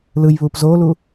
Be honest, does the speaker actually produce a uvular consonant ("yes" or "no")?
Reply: no